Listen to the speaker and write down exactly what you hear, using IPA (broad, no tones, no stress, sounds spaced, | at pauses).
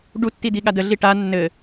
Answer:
ɖ u tː i d i ɠ a d ə ɮ i ʈ a nː ɘ